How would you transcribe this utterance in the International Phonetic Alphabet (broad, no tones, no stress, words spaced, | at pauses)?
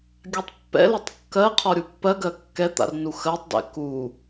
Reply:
ɡʲatˤpːɛ̰lɛtˤ kːɜqʰɔ ɾʲupːɜɡɜ kːɛt̪a̰rnu xɜtˤdɛ̰ ku